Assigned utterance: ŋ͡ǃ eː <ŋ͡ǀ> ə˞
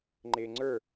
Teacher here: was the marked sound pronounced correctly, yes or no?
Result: yes